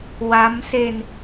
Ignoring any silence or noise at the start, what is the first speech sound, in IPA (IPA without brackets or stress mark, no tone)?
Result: w